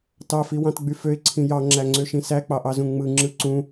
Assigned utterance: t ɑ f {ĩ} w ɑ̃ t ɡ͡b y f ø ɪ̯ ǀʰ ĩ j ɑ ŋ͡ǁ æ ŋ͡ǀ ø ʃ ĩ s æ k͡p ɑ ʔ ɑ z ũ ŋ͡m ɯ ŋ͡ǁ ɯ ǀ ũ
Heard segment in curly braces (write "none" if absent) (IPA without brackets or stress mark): i